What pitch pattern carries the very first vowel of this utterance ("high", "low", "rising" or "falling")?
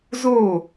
falling